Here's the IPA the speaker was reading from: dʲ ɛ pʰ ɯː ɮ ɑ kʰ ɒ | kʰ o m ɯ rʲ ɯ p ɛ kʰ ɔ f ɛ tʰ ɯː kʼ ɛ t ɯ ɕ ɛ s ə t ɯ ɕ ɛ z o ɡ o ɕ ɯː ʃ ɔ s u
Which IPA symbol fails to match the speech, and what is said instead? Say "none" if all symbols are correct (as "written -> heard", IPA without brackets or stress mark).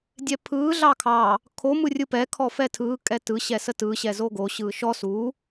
ɒ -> ɑ